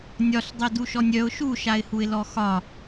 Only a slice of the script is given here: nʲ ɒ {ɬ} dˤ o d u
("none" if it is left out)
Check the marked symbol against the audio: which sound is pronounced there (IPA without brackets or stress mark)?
ɬ